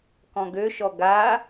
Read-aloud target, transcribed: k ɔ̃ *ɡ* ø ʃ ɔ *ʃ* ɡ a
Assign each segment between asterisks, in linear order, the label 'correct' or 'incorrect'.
correct, incorrect: none

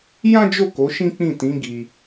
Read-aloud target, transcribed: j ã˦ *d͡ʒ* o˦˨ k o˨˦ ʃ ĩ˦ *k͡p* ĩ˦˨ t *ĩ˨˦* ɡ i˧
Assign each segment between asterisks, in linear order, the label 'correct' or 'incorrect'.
correct, correct, correct

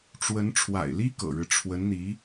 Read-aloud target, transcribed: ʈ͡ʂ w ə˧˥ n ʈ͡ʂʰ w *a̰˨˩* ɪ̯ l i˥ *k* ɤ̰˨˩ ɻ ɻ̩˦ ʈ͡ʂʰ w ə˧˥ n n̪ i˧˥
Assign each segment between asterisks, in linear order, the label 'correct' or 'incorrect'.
correct, correct

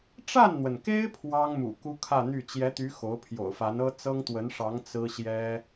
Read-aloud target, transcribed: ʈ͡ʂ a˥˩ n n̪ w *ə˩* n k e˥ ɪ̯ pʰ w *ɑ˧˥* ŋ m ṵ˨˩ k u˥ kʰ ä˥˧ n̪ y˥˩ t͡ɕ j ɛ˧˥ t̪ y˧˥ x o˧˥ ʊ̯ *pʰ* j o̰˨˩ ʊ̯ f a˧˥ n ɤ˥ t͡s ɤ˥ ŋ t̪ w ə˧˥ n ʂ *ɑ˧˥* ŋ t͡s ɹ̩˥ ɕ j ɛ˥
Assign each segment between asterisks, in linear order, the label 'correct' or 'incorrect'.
correct, incorrect: ɑ˥, correct, correct

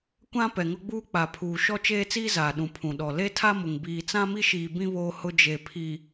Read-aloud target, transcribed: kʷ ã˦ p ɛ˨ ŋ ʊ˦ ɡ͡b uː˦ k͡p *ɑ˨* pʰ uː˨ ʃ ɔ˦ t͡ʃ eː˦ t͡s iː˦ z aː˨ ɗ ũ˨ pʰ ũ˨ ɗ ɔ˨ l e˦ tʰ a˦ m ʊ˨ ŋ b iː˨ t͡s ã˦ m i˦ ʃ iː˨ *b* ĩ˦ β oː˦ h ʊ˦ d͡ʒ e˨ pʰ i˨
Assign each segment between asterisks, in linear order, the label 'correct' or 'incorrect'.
incorrect: a˨, correct

